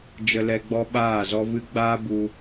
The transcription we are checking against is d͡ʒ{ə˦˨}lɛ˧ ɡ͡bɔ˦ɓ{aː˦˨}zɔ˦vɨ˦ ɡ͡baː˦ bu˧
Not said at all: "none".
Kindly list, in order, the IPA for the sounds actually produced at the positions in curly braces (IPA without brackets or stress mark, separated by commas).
ə˧, aː˦˨